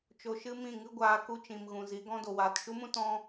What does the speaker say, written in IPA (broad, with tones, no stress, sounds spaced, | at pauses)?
t͡ʃ o˧ ʃ ɨ˦ m ĩ˦˨ ŋ ɨ˦ ɡʷ aː˧ k u˧ t͡ʃ ĩ˨ m ɣ ũ˨ z i˨˦ ɡ ɔ̃˦ d o˨ w aː˨ t ʃ u˦ m ũ˦ t ɔ̃˦